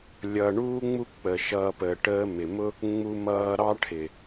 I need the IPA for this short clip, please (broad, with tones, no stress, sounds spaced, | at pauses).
lʲ ʌ˨ ɳ uː˦ ŋ͡m u˦ k͡p ə˨ ʃ ʌː˦ p əː˧ ʈ əː˧ m ɪ˨ m ʊ˦ | ŋ͡m u˦ m ʌː˦ ɾ ɑ˦ ʈʰ ɪ˨